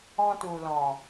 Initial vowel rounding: rounded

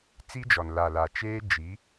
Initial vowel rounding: unrounded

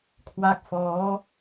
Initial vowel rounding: unrounded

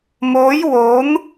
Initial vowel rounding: rounded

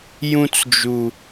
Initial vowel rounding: rounded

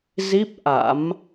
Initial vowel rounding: unrounded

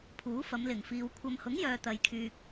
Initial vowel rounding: rounded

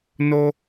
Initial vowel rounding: rounded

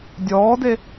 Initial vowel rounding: rounded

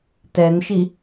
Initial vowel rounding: unrounded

